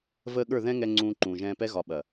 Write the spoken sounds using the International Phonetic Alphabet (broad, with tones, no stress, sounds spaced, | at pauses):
v əː˧ ɠ ə˞˦˨ ð ɛ̃˦ ŋ ɛ˧ ŋ͡ǀ ũː˧ ǃ ũː˨ ʒ ɛ̃ː˧ p ɛ˦ ɣ ɒ˨ ɓ ɐ˨